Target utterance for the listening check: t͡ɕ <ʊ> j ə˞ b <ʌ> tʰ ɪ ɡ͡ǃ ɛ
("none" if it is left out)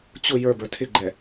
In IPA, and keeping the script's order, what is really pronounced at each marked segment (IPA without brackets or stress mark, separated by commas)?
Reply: ʊ, ə˞